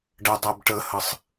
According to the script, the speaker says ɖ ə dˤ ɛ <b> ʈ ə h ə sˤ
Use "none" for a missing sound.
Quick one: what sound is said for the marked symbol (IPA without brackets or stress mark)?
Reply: b